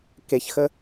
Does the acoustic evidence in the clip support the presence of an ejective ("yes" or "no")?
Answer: no